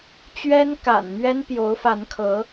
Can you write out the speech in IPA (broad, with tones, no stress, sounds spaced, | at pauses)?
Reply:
t͡ɕ ɥ ɛ˥ n k a̰˨˩ n m ɥ ɛ˥ n p j o˧˥ ʊ̯ f a˧˥ n kʰ ɤ˧˥